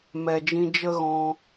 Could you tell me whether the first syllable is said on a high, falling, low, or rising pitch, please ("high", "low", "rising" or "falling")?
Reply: low